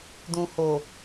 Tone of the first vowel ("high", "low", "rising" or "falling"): low